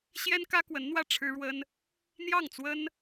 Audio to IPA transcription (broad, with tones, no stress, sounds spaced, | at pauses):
ɕ j ɛ˥ n k ä˥ k w ə˧˥ n n̪ w ä˥˩ ʈ͡ʂʰ ɻ̩˥ ɻ w ə˥ n | n̪ j ɑ˥˩ ŋ t͡s w ə˥ n